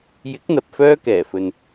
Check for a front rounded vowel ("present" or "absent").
present